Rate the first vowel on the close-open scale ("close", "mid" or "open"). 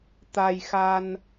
open